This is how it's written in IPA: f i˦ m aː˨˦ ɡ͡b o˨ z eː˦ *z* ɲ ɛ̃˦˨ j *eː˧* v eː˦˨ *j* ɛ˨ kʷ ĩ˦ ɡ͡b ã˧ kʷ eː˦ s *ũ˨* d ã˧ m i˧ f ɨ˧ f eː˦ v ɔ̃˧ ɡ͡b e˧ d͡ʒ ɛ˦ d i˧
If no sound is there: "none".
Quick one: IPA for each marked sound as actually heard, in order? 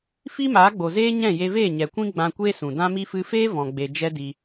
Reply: none, e˧, ɲ, ũ˨

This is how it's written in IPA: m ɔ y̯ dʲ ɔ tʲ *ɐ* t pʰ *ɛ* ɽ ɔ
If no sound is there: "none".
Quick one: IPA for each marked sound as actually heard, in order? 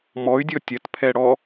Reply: ɐ, ɛ

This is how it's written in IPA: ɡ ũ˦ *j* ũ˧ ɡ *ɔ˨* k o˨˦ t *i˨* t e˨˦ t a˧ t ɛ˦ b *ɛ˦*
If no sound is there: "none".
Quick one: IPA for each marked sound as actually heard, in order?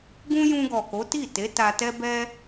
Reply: j, ɔ˨, i˦˨, ɛ˦

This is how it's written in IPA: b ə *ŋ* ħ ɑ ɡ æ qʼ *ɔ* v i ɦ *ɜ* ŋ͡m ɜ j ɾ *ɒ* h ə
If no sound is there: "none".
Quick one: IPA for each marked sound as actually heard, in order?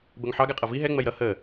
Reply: ŋ, ʌ, ɛ, ʌ

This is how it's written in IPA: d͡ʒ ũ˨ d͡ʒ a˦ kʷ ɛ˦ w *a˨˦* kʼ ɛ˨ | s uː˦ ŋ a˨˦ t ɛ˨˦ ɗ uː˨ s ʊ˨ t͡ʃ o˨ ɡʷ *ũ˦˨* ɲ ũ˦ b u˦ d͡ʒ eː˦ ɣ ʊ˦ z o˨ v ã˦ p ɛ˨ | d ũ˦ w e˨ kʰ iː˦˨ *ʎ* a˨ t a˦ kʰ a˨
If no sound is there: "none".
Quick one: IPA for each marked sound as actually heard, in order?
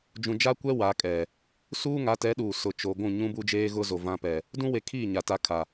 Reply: a˨˦, ũ˦˨, ɲ

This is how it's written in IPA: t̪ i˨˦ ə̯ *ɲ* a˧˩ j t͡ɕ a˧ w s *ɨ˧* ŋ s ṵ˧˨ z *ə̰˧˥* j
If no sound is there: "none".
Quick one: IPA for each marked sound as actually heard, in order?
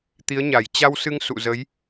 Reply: ɲ, ɨ˧, ə˨˦

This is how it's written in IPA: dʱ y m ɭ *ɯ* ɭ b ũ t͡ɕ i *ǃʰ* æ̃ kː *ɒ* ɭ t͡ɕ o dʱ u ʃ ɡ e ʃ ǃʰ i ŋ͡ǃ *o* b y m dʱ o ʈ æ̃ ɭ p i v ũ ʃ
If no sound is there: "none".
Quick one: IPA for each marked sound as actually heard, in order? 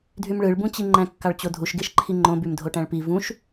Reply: ɯ, ŋ͡ǃ, ɑ, õ

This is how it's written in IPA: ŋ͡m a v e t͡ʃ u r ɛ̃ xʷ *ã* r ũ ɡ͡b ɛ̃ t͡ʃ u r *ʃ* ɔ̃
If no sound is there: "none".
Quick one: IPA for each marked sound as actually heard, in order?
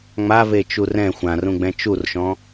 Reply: ã, ʃ

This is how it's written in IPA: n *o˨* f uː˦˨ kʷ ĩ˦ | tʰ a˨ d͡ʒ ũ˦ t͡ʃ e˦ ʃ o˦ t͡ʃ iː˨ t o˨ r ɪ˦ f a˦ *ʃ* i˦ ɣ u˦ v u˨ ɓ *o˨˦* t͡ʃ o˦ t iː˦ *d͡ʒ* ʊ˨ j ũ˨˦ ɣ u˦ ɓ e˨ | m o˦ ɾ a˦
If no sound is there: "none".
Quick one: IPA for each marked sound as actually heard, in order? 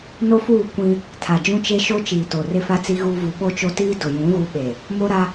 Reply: o˦, t͡s, o˦, d

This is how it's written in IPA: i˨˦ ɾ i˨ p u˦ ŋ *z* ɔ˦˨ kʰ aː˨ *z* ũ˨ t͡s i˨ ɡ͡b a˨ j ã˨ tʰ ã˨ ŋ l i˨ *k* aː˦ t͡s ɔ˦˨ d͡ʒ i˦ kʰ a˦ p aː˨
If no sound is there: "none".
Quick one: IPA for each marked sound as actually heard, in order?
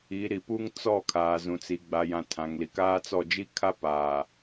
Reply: t͡s, z, k

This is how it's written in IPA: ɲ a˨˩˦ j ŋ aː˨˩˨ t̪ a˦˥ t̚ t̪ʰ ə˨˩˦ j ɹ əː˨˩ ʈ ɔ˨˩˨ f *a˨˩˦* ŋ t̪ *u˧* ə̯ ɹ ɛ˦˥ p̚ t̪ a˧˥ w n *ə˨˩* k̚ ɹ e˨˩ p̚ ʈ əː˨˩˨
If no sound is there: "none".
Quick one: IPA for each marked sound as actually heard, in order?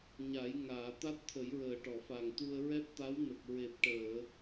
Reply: a˨˩, u˧, ə˨˩

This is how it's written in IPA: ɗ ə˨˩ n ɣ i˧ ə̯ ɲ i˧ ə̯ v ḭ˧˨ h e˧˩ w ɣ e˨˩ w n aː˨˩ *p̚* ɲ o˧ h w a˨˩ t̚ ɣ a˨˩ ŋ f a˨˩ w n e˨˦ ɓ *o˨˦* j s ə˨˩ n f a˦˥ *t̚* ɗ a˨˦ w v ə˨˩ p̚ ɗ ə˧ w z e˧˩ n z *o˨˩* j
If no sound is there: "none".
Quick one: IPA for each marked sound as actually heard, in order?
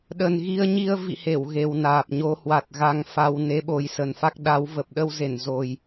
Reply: p̚, o˨˩, k̚, o˨˩

